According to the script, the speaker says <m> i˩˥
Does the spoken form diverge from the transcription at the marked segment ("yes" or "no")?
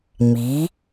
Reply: no